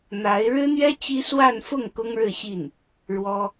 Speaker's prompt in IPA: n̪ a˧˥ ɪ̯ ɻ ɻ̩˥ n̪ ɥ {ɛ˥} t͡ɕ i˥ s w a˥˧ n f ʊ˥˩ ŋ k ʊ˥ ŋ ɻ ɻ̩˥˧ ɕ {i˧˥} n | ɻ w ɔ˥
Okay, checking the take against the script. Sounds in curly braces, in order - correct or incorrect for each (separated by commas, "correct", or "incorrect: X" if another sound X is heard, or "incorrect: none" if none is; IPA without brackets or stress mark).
correct, incorrect: i˥˩